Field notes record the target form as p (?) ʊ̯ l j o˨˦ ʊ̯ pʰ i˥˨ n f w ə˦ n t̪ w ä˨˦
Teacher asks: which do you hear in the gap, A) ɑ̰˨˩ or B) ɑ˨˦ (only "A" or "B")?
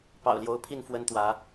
A